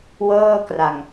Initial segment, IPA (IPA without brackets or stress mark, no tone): w